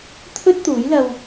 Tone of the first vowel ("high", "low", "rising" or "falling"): high